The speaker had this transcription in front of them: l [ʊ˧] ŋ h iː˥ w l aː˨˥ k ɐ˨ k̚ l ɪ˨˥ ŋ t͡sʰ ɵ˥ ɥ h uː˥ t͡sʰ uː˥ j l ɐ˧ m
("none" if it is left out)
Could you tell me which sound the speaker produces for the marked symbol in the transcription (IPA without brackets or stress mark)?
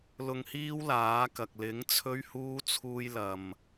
ʊ˧